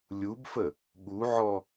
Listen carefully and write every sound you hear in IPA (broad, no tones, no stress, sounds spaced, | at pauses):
lʲ u b f ə | ɠ u ʕ ɔ